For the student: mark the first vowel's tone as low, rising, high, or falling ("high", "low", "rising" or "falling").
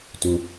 high